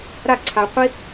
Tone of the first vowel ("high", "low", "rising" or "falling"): falling